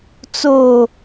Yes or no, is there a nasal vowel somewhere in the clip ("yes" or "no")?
no